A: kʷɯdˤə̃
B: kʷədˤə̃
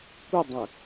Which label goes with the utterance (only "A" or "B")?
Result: B